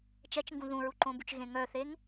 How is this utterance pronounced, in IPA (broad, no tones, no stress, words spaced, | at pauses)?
t͡ʃɛt͡ʃŋɡũ ðũɹuǃõbyt͡ʃ ɣẽŋœθeŋ